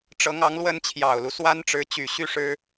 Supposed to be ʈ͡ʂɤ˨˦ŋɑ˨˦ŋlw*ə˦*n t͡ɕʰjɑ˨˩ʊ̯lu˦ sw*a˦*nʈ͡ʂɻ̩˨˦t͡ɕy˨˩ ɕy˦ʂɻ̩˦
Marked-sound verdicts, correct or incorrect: correct, correct

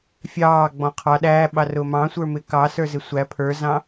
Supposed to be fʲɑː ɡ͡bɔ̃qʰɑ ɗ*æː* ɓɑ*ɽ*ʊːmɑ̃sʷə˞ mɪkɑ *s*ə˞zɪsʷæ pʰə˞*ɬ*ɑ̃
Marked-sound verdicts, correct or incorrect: correct, incorrect, correct, incorrect

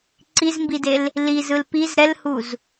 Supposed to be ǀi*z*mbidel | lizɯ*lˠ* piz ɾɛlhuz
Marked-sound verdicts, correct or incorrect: correct, incorrect

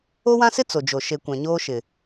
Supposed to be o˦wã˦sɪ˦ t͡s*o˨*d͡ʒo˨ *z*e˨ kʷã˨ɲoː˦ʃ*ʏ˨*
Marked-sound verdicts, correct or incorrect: correct, incorrect, incorrect

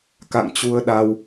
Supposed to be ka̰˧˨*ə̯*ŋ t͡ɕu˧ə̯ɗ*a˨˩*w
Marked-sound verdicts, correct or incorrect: incorrect, incorrect

